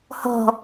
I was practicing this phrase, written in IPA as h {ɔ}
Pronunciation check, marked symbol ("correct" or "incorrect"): incorrect